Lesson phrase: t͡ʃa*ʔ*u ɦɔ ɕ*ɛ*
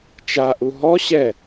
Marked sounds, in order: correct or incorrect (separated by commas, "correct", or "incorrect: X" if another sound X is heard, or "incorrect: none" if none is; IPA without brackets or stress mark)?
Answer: correct, correct